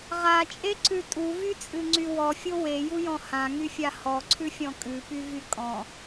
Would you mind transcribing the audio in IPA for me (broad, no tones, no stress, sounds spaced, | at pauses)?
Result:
ʁ a t͡ʃʼ e ǀ ʉ tʼ u v y t͡sʼ ɨ ŋ͡ǀ y w ɔ fʲ o w e j u j ɔ̃ h ã ŋ y fʲ a h ɔ ǀʰ ʉ fʲ ɔ̃ kʼ ʉ p y v y kʼ ɔ̃